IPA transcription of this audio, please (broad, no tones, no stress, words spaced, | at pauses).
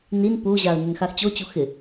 nin puʑaə̯ nʏnxaxt͡ɕot͡ɕu xɪ